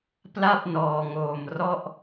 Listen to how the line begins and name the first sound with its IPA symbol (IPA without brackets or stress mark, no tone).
p